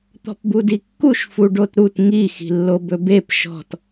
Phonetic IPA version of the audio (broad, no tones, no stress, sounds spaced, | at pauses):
t̪ ɔ̤ p b u d i kː u ʃ f u ɖ o t ɾ u t ŋ i x i̤ lː o b ɵ b e p ʃ ɔ̤ t